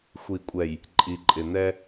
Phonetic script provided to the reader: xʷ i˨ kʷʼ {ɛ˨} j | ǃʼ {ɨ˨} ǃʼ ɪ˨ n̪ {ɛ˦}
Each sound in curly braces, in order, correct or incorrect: correct, incorrect: i˨, correct

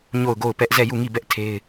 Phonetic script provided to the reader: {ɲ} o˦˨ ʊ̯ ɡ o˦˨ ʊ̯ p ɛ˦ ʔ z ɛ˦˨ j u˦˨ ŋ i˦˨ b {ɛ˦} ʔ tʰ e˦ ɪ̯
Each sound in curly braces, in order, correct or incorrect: correct, correct

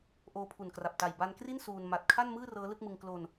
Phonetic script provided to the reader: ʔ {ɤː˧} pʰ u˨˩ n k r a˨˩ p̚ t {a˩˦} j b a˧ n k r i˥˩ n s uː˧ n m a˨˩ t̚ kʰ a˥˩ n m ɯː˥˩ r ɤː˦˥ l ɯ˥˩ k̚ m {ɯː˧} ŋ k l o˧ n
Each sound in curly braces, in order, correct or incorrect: incorrect: oː˧, incorrect: a˨˩, incorrect: ɯ˧

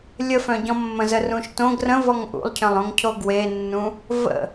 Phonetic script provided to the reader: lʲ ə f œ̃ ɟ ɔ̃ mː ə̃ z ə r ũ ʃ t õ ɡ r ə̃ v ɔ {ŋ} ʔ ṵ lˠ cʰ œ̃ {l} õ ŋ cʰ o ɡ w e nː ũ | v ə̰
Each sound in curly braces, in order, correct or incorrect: correct, incorrect: lˠ

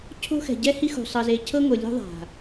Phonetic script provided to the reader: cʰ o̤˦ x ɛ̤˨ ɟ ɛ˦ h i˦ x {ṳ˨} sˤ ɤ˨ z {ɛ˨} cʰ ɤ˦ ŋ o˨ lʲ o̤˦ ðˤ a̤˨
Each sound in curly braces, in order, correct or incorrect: correct, incorrect: e˨

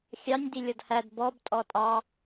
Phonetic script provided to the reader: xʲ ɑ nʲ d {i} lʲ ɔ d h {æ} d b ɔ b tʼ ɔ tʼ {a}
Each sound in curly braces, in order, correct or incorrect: correct, correct, incorrect: ɑ

